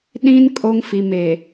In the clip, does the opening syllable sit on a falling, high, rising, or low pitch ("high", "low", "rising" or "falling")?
high